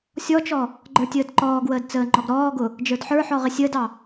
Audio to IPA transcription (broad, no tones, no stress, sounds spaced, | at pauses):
sʲ ɔ t͡ʃ ɔ | ɡ͡ǃ ə˞ tʲ əː d ǃ ɔː ɡ w əː d t͡s əː ŋ͡ǃ ɔ ɡ ɾ ɔː ɡ ʊ | d͡ʒ ə˞ d ħ ə˞ ħ ɔ ʁ ɪ sʲ əː d ɑ